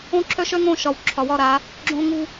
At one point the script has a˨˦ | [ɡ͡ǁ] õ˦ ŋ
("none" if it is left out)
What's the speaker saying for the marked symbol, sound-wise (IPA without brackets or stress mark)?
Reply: ɡ͡ǁ